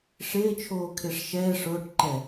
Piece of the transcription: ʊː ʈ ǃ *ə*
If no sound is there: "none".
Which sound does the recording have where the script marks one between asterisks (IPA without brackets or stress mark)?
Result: ɛ